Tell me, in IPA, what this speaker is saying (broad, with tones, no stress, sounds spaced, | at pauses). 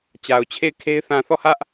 t͡ɕ a˨ ʊ̯ t͡ɕʰ e˦˨ ɪ̯ kʰ e˦ ɪ̯ θ ã˨ θ ɔ˦˨ h ä˦ ʔ